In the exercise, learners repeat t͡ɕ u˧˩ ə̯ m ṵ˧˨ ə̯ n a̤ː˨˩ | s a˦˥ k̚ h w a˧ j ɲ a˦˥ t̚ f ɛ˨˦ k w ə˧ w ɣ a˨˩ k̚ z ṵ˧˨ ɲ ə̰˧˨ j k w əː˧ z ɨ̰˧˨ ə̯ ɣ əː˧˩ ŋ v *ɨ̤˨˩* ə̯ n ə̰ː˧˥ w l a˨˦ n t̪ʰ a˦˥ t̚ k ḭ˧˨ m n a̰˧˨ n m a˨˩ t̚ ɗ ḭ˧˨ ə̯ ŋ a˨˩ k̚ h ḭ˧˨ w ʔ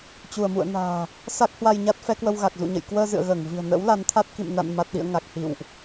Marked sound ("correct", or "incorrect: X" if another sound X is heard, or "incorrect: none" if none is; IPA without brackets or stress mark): correct